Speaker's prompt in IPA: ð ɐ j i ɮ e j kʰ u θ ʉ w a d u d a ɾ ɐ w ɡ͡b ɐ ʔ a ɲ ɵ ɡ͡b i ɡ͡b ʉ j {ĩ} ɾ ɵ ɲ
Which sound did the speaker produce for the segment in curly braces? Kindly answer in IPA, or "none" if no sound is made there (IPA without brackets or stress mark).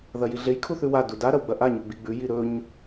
i